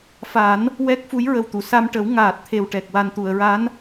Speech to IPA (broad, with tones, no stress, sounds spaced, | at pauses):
f a˨˩˦ n | w ɛ˦˥ k̚ f u˧˥ j ɹ ə˨˩ w t̪ u˨˩˨ s a˧ m ʈ ə˨˩˦ w ŋ aː˨˩ t̚ t̪ʰ e˨˩ w ʈ ɛ˨˩ k̚ w a˨˩ n t̪ u˨˩˨ ə̯ ɹ a˧˥ n